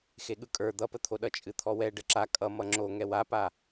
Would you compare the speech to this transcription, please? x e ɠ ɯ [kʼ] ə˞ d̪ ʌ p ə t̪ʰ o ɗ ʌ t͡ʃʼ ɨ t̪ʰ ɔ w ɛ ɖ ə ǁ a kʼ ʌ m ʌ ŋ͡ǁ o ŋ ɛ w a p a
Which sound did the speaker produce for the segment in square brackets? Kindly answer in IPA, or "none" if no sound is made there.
kʼ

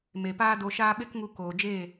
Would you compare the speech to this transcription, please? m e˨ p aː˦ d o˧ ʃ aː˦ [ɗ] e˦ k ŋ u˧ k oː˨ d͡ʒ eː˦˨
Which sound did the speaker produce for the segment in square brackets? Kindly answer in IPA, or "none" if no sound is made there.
ɓ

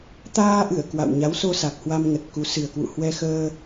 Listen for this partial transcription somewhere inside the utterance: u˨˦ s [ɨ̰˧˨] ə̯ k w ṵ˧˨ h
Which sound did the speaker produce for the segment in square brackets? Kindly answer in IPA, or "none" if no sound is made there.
ɨ˨˩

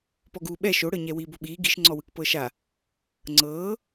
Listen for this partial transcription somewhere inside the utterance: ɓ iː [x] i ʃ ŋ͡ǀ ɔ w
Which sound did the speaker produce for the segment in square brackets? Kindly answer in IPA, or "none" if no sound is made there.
ɡ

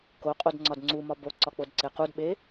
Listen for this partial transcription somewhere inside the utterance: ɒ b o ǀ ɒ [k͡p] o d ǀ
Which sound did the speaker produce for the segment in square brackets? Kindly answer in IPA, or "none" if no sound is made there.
k͡p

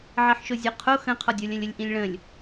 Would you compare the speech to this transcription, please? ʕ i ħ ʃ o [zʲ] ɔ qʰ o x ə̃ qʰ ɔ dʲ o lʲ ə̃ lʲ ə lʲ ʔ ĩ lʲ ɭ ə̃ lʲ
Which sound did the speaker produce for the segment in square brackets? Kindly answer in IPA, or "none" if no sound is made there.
zʲ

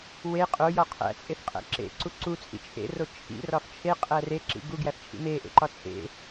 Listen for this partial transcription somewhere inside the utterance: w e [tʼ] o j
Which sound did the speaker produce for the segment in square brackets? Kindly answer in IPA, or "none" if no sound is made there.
qʼ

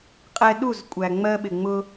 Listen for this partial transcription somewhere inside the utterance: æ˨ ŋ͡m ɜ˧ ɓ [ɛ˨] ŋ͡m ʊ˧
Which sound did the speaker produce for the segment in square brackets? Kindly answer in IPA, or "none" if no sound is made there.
ɪ˨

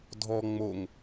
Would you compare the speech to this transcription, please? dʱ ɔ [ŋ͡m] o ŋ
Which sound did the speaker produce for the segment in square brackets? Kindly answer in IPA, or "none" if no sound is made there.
ŋ͡m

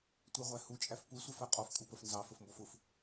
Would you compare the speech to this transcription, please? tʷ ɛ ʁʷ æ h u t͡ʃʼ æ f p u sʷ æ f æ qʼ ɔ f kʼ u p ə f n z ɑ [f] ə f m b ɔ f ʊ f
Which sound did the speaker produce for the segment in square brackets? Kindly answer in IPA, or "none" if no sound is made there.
f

